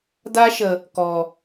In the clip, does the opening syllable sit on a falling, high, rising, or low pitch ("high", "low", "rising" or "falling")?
high